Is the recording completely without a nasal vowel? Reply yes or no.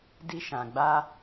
no